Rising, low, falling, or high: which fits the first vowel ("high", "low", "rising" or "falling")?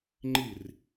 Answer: falling